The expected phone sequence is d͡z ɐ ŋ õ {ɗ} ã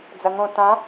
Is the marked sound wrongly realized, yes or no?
yes